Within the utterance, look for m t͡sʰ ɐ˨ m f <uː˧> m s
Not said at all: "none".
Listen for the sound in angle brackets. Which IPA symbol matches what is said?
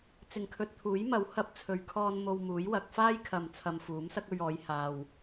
uː˨˥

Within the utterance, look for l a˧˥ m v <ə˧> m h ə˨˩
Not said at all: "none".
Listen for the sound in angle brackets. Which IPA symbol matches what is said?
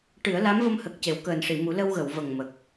ə˧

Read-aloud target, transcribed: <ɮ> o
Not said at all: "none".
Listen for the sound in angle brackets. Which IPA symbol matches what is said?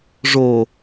ʐ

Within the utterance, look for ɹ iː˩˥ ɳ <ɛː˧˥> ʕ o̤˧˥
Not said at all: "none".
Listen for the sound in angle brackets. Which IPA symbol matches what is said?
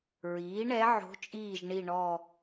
ɛ˧˥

